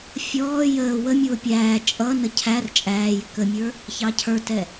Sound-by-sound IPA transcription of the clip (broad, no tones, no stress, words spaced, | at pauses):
fʲɔː jəː wə mʲʊːpʲæː t͡ʃʼʌnə cʰær t͡ʃʼæː jɪkəmʲə˞ | çɑcʰə˞tɛ